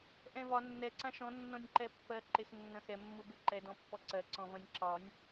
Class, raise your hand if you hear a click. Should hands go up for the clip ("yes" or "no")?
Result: yes